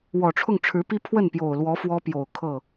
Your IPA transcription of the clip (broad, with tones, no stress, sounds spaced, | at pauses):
w ɔ˨˩ ʈ͡ʂʰ ʊ˥˩ ŋ ʈ͡ʂʰ ɻ̩˧˥ p i˥ pʰ w ə˥˩ n p j o˨˩ ʊ̯ l w ɔ˧˥ f w ɔ˥ p j o˨˩ ʊ̯ kʰ ɤ˥˩